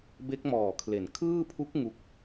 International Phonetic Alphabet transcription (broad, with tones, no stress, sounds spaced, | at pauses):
b e˦˥ k̚ m ɔː˨˩ kʰ l e˩˦ n kʰ ɯː˥˩ pʰ u˦˥ k̚ ŋ u˦˥ k̚